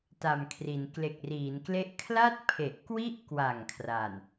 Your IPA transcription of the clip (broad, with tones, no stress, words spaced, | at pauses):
ta˨˩m kʰri˩˦n kle˨˩k̚riː˩˦nkle˦˥ʔ kʰla˥˩t̚pʰe˨˩ʔkwi˥˩ʔkwa˨˩ŋ kʰraː˨˩n